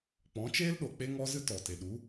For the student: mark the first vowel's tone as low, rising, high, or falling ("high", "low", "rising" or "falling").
rising